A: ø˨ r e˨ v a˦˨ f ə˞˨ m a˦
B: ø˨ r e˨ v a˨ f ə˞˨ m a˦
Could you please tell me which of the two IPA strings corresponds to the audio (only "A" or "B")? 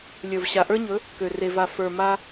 B